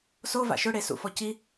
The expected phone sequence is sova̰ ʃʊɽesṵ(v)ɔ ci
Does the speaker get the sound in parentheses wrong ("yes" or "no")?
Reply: yes